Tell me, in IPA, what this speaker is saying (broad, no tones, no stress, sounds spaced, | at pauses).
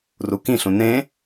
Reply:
r u k ĩ ɬ ũ n ẽ